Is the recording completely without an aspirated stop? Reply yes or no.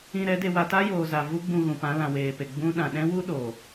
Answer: yes